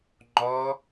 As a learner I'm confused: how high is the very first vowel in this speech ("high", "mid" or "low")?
mid